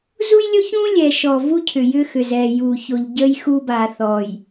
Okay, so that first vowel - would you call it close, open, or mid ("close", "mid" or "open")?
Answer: close